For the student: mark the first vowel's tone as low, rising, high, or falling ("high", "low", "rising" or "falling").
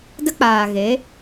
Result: high